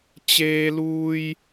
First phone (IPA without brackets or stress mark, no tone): t͡ɕ